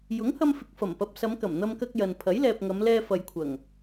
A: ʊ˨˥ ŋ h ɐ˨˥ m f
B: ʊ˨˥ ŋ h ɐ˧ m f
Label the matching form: B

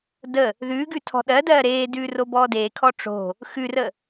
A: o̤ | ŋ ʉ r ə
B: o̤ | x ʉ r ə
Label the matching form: B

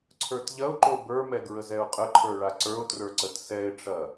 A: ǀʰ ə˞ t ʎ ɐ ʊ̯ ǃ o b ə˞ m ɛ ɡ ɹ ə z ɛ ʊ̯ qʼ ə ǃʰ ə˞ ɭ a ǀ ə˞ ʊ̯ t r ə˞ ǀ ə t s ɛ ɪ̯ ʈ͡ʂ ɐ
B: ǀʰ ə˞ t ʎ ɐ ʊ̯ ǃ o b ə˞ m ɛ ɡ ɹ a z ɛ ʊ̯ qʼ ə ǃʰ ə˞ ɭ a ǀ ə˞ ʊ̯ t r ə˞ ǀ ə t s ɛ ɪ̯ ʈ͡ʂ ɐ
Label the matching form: A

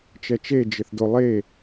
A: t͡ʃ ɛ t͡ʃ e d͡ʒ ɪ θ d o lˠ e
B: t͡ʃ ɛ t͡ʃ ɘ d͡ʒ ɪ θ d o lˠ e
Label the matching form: A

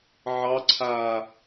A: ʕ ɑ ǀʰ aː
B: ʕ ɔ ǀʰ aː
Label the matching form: A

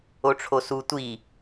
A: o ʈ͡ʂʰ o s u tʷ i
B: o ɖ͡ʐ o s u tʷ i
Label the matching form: A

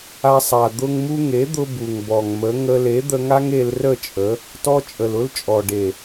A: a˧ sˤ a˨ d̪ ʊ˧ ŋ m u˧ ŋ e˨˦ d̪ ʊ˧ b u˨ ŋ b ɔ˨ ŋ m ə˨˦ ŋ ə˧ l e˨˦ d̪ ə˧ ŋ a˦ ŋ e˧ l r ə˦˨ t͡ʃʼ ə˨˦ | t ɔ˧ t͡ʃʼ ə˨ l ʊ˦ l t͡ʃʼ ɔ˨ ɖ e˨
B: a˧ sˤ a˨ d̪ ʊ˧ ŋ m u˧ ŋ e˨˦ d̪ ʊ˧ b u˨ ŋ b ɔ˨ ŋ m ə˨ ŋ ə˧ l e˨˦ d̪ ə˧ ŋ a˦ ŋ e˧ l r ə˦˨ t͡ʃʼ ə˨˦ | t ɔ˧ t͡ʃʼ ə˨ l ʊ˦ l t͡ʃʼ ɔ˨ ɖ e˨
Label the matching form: A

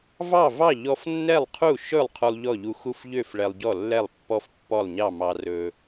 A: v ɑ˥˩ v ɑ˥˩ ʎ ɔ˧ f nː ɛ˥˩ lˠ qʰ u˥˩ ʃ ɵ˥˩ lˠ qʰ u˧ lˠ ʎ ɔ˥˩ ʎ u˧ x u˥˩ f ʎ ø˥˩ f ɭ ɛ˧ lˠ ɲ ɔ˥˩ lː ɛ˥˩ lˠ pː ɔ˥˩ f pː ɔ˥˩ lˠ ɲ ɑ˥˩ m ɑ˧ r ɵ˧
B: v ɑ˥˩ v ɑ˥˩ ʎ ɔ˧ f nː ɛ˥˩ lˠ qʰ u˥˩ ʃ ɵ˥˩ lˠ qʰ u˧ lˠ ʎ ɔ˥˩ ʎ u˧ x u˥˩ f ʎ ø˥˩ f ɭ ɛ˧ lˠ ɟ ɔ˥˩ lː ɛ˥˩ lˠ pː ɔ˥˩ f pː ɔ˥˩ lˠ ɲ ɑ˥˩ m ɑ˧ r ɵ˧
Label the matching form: B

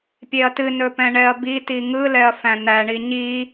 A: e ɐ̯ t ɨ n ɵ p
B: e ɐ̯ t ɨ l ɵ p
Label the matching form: A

